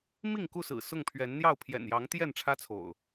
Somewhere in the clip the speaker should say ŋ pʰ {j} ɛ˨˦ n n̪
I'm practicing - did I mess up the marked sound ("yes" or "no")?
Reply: yes